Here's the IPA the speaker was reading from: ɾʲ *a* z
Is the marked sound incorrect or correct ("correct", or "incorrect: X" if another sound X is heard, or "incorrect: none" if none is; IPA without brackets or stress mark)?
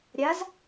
correct